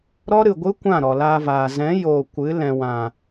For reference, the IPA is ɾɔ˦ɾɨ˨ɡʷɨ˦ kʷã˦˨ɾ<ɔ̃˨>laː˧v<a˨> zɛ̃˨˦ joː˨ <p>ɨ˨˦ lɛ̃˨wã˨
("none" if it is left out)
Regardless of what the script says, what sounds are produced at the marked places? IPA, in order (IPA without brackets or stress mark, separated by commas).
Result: ɔ˨, aː˨, kʷ